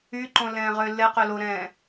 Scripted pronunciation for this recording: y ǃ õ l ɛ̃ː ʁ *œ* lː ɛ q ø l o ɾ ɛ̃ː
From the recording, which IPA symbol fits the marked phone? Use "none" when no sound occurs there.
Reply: ø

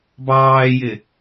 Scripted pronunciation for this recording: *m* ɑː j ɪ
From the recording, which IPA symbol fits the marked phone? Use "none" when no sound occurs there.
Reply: b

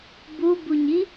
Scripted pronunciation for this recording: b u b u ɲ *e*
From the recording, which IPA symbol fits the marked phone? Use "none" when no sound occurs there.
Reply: i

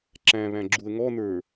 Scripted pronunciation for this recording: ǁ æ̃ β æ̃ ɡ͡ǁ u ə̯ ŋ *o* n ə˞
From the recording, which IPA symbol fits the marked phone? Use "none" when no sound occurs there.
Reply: ɔ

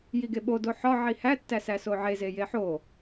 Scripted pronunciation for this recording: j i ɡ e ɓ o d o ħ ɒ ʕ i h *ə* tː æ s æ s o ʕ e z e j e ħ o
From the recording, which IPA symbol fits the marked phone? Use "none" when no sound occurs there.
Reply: æ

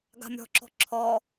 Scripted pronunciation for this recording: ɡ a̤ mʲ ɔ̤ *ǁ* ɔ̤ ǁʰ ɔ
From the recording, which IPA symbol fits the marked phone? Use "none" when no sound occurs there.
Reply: ǁ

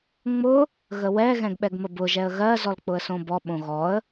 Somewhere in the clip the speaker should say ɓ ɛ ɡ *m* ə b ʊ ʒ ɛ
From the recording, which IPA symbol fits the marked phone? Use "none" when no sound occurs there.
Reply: m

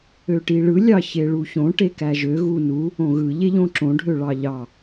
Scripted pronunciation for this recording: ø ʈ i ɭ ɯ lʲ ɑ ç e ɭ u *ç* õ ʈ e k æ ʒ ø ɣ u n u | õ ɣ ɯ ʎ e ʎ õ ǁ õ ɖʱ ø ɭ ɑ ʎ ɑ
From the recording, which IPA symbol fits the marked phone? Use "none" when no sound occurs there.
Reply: ç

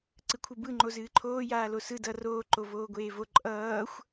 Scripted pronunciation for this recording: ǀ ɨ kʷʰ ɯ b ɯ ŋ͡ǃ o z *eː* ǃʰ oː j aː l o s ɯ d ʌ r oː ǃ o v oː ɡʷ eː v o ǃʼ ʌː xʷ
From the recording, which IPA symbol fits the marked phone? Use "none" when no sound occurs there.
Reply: ɨː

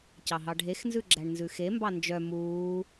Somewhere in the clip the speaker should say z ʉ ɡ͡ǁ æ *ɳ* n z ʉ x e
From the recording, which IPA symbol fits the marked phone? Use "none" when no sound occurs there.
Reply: ɳ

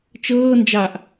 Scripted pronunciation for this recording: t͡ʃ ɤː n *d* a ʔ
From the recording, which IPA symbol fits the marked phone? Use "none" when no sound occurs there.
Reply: d͡ʒ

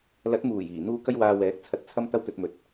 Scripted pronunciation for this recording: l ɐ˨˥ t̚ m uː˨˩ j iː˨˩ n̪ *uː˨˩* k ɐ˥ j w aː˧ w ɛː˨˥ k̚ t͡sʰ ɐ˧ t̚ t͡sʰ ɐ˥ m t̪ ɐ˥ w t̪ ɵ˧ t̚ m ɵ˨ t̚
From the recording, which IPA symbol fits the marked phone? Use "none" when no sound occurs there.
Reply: uː˥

